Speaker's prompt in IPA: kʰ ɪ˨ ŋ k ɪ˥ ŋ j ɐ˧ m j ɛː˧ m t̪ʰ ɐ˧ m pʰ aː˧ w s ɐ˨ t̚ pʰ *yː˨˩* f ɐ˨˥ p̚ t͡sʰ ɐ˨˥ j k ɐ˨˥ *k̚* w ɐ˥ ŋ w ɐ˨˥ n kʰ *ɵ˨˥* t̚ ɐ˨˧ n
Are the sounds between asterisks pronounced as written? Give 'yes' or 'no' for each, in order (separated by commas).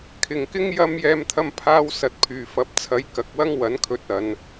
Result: yes, yes, yes